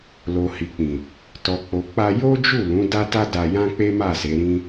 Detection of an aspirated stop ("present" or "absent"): absent